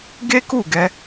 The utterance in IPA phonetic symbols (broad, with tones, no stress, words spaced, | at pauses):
ɡe˦ku˦˨ɡɛ˧